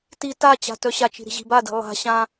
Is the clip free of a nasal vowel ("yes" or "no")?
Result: no